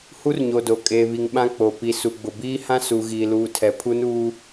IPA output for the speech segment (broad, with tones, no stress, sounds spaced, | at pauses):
h u˦ r ɲ o˨ d o˨ kʼ eː˨ β i˨ ŋ ɓ ã˦ k͡p o˨ p i˨ s u˨ ɡ͡b ʊ˨ b iː˦ h ã˦ s u˨ ɣ iː˨ l uː˨ tʰ ɛ˨ pʰ u˦ n uː˦